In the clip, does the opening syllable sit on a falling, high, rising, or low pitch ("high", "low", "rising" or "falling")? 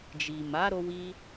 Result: low